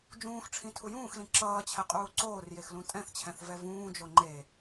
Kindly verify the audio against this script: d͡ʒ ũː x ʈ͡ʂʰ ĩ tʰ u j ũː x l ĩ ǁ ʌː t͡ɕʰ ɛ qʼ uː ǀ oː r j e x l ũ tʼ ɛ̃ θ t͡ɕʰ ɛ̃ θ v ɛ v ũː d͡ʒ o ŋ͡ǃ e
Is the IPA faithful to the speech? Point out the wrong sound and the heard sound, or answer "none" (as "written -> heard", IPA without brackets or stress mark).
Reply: none